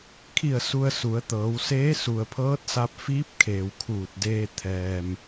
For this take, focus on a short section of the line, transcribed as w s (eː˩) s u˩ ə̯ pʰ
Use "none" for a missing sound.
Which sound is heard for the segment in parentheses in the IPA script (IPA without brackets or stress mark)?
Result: eː˧˥